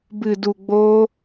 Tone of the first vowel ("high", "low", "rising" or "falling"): low